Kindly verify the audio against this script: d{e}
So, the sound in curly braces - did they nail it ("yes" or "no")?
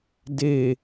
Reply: yes